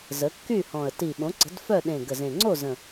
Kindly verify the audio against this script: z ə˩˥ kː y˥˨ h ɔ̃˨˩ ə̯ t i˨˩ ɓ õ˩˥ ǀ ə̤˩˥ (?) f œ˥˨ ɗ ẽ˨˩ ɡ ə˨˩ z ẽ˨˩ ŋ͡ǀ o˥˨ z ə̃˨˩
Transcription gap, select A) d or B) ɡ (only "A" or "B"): A